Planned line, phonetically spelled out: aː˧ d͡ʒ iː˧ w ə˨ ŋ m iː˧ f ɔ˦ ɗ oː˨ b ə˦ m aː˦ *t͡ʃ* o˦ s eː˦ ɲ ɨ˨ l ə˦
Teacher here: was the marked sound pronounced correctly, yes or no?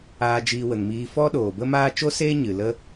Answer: yes